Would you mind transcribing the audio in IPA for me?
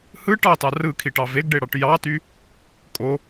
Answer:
hɯ ʈɑtɑ rɯkʰiʈɑ veɡɖeɽɑʈ jɑty | kʼo

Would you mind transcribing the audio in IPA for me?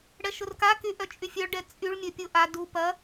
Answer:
ɽɛʃʊrkaky ʔœt͡ʃʼyfʲœɭɖɛ t͡sʼyɭmʲœ pʲʊ ʔa du pɐ

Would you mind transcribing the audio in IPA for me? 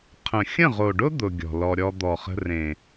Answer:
qʰə̃˨xʲə̃˦˨ʁo˨ɖʊ˦ d̪ʊ˧ɡʲɔ̤˨lɔ˧ɾʲɔ˦ d̪ɔ˨χə̤˧rẽ˨

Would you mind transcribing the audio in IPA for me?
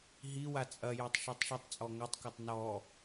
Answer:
ɦiwa t͡sʼɐjœtˤ ʃœtˤʃitˤt͡sʼɔ ŋœtˤkɐtˤ nɔ

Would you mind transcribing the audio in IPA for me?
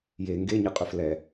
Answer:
je ŋɡeɲɘqʼɵf lɛ

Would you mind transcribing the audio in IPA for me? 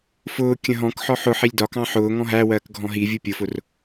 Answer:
fʊː kʲə̃ɦɔ̃kħɔ ħʊ ħilʲdɒkɑ̃ ħʊː ŋɔ̃ɦæwɜːk ɡʱɔ̃ɦivʲu pʲʊfʊr

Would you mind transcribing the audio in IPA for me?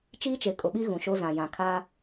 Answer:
t͡ʃiː˦t͡ʃe˨ kʼʊ˨ɓi˦ ɣũ˨ʃo˦zã˨ jã˨kʰaː˦

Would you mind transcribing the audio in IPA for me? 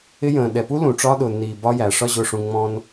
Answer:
ɪ˧jə̃ː˨ɗɛ˨pu˦ lũ˨ʈ͡ʂɒ˦ɗʊː˨nːiː˨ bɒ˧jæ˨ ʂɒ˧ʑʊ˨ʂũ˨ ŋ͡mɔ̃˧n

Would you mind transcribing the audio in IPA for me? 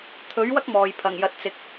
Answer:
t̪ʰɵ˨˥ɥwɐ˥k̚ mɔː˨˧j pʰɐ˨˩ŋjɐ˨t̚t͡sɪ˨˥k̚

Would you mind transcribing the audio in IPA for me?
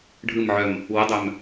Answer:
ɖʱɯm ʕœm | wʊdˤœm

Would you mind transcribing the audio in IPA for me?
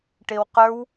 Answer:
ʈewqə˞w

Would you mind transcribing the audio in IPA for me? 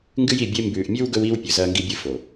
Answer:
ŋɡɨ˦ji˨bʲe˦ mbʉː˨ʔmʲʉ˦w ɡɵ˦wiː˦wpʲɵ˨ zɐː˦ŋɡi˦bʲɨ˦ fo˨

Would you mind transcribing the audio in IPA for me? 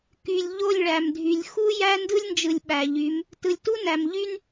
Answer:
ky˨lʲʎo˦˨lʲɭæ˨mdʱy˨lʲ xu˦jæ˦ ndɯ˦lʲnd͡ʒɯ˨lʲ ɓæ˨ʎy˨˦m | tɯ˨lʲ tu˦næ˨m ʎy˦n

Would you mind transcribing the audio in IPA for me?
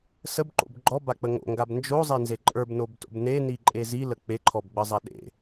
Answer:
səbǃo̰b ɡ͡ǃɔbak͡pə ŋo̰ŋɡab nd͡ʒozˤenze ǃʼə˞bnobto̰b neniǃʼe zilə k͡peǃʰɔbɡ͡bəzˤa ɗḛ

